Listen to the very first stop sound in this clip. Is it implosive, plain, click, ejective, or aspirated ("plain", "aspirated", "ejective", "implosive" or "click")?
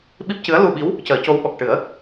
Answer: implosive